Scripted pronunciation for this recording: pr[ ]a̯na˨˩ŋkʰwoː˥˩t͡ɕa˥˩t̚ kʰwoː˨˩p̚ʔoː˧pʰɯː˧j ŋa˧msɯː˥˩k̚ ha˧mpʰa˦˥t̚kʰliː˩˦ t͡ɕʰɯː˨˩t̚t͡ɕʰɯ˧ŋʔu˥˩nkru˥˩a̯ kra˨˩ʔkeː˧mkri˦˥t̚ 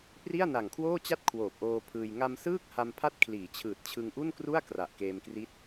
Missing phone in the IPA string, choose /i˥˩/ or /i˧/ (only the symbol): i˥˩